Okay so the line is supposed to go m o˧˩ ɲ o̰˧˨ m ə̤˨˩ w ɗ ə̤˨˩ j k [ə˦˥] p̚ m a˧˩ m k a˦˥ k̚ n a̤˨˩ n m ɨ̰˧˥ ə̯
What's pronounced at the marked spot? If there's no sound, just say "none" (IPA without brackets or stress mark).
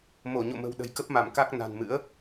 ə˦˥